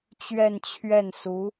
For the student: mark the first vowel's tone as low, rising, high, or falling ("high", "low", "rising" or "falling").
falling